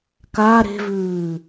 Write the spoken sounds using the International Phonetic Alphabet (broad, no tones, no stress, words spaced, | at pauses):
ka ɾe̤vʉː